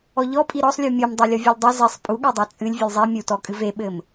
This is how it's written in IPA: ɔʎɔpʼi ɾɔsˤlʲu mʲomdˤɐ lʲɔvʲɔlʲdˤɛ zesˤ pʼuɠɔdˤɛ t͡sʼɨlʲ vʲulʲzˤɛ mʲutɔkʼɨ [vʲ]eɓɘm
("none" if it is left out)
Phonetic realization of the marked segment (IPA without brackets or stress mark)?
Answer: v